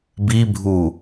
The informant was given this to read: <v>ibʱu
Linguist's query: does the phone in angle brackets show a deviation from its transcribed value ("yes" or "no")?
yes